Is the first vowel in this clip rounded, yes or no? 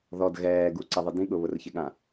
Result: yes